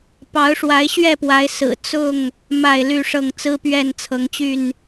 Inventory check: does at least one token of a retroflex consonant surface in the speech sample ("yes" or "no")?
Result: yes